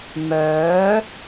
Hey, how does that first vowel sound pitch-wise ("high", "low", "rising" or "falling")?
rising